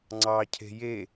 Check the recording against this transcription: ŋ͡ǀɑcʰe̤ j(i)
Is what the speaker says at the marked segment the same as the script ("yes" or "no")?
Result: no